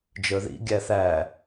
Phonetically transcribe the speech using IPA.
d͡ʒ ə˞ ð ḭ ɡʲ æ θ æ

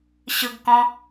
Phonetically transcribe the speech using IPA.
ɕ ɯ ɡ k ɔ̃

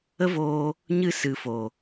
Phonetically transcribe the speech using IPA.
ə˦ v oː˧ | ɲ ɨ˦ s ɨ˨ f o˨

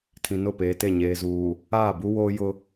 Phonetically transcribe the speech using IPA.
tʰ ĩ˨ n ʊ˦˨ p eː˨ t e˦˨ ɲ eː˨ z uː˨ | aː˦˨ b u˦ w oː˦ j ʊ˦

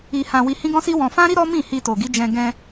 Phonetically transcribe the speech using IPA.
i˧ h ã˧ w i˧ h ĩ˦ ɡ ɔ̃˦ s i˦ w ɔ̃˧ f ã˦ ɾ i˦ ɾ ɔ˦ m ĩ˦˨ h i˧ t o˨ ɡ i˨˦ d͡ʒ ɛ̃˧ ɡ ɛ̃˧

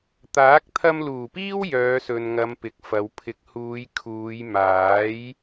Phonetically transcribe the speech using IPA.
t̪ aː˨˥ k̚ t̪ʰ ɐ˧ m l uː˨˩ p iː˥ w j œː˨˧ s ɵ˨ n ŋ ɐ˨˧ m p ɪ˨ k̚ f ɐ˨˧ w pʰ ɪ˨ k̚ h uː˨˧ j kʰ uː˨˧ j m aː˨˥ j

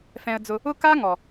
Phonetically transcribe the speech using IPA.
f ɛ̃˧ ə̯ d͡z ʊ˧ | ʊ˦ k a˦ ŋ ɔ˨

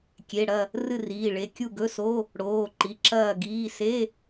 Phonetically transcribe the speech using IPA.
kʲ e˩˧˩ ɽ ɐ˥˨ | r ɨ˥˨ r iː˩˧˩ ɭ e˩˧˩ kʲ u˥˨ ɡ ɵ˧˥˧ s o˧˥˧ | ɽ oː˩˧˩ ǃ i˩˧˩ ǁ ɐː˥˨ ɡ iː˧˥˧ s e˧˥˧

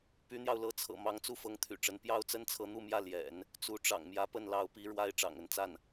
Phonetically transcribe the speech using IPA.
p y˧˥ n̪ j ɑ˧ ʊ̯ l ɤ˧˥ t͡sʰ ɤ̰˨˩ m ɑ˧˥ ŋ t͡s u˥˩ f ɤ˧˥ ŋ t̪ʰ y̰˨˩ ʈ͡ʂ ə˧˥ n p j ɑ˥ ʊ̯ t͡s ə˥ n t͡sʰ ɤ˧˥ n̪ u˥˧ m j ä˥˩ l j ɛ̰˨˩˦ n | t͡s u˧˥ ʈ͡ʂ ɑ̰˨˩ ŋ m j ä˧˥ p ə˥˩ n l ɑ˧˥ ʊ̯ p i˧˥ ɻ w a˥ ɪ̯ ʈ͡ʂ ɑ̰˨˩ ŋ ə˧˥ n t͡s a˥˩ n

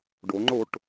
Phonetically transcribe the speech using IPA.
ɖ o ŋ͡ǃ o ʈ

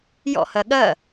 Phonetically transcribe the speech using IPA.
j ɔ̰ h ɜ ɠ ɜ

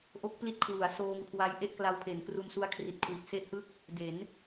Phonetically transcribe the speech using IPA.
ʔ o˦˥ k̚ p l i˦˥ t̚ kʰ w u˩˦ a̯ s oː˧ ŋ kʰ w a˦˥ j ʔ e˥˩ ʔ k l a˧ w pʰ e˩˦ n k r u˧ n s u˦˥ a̯ kʰ r i˨˩ t̚ kʰ w i˨˩ t̚ s e˥˩ ʔ h ɯ˥˩ k̚ | d e˩˦ n

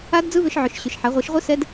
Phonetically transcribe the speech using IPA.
a˦˥ d d͡z ɯ˦˥ β ʏ˦˥ ʃ ʕ ʏ˨˩˦ ʃ ɕ ʏ˨˩˦ ʃ ħ a˨˩˦ ʁʷ ɯ˨˩˦ ʃ ʁʷ ɯ˦˥ s ɛ˦˥ d

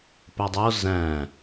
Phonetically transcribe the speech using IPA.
p œ dˤ o z æ̃

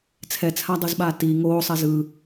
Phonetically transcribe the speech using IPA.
t͡sʰ ɛ t͡sʰ a dˤ ɯ z ɓ aː t i ŋ oː sˤ ɛ z ɯ

